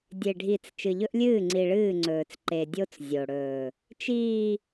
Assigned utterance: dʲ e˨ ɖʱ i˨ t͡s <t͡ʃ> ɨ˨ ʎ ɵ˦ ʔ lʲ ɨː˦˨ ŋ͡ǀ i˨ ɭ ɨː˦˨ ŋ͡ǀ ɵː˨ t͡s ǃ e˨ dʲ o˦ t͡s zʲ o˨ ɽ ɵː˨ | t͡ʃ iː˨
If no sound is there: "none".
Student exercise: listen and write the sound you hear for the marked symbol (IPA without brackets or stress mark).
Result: t͡ʃ